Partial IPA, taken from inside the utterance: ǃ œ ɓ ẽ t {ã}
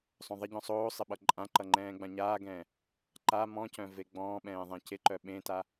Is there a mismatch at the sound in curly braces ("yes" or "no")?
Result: yes